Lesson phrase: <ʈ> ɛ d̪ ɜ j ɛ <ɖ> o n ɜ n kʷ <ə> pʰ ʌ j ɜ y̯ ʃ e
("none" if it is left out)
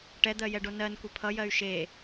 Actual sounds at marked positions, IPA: ʈ, ɖ, ə

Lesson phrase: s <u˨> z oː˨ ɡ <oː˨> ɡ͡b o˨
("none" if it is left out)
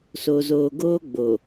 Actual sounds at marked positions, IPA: o˨, oː˦

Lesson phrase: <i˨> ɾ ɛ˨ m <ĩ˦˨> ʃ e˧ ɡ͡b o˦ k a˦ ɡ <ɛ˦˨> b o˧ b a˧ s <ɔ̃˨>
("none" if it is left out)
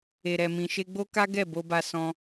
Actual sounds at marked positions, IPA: e˨, ĩ˨, ɛ˦˨, ɔ̃˧

